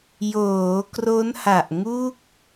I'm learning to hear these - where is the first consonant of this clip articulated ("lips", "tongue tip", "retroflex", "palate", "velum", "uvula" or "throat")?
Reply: palate